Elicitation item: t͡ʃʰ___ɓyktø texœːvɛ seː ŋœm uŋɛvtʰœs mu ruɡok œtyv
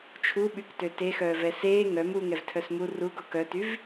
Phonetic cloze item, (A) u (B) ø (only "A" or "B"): A